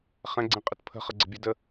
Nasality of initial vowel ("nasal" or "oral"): nasal